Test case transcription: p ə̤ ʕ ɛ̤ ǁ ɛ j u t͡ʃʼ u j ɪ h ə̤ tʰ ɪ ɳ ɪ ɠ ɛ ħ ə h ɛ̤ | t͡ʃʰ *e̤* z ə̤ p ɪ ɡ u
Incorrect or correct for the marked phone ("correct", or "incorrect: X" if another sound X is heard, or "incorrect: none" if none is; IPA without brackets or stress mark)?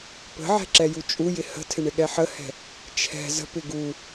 incorrect: ɛ̤